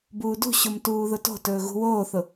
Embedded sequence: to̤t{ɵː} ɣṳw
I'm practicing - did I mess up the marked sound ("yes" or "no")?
no